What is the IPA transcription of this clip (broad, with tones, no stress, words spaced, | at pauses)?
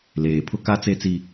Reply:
leː˨ pʰʊ˦ka˦t͡se˦t͡si˦